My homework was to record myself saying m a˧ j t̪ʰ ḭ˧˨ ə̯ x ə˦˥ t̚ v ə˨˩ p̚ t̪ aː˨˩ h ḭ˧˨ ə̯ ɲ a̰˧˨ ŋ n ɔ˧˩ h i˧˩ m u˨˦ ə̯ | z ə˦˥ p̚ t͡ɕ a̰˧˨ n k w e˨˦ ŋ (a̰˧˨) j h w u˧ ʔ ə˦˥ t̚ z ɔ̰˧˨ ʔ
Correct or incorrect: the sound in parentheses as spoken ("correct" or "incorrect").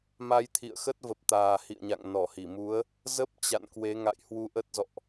correct